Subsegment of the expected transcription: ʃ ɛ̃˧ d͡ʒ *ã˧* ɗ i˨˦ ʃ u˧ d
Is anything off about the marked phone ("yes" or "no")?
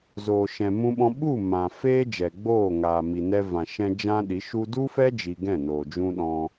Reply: no